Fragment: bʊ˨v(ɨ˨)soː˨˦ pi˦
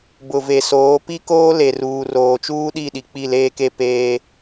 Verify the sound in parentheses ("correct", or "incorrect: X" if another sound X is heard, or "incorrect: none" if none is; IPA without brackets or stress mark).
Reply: incorrect: e˨